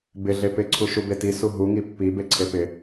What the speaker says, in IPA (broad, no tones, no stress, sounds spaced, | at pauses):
b ɪ ɮ e p ɪ ǀʰ u ʃ u b e t i s u ɦ u ŋ i pː i b e ǀʰ e p ɪ